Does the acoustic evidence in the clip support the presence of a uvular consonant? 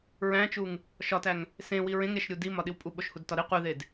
yes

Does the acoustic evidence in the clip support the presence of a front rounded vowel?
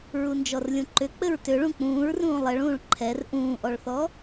yes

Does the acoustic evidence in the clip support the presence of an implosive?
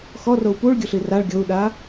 yes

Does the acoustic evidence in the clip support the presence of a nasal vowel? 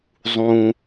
yes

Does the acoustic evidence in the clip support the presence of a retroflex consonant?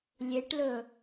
yes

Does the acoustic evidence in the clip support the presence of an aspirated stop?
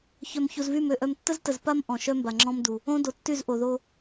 no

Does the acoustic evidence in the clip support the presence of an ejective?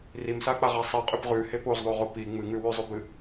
yes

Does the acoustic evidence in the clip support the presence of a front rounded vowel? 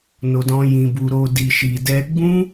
no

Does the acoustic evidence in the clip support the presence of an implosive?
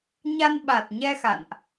yes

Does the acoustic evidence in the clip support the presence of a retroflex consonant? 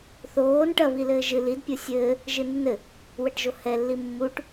yes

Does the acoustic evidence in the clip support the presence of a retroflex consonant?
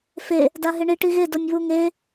yes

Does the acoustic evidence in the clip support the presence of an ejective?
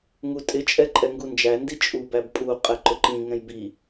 yes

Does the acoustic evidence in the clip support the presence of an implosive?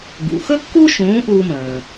no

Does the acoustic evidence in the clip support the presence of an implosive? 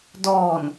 no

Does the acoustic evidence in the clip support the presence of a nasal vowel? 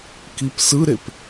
no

